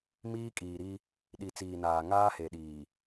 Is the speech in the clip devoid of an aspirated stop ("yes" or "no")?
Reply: yes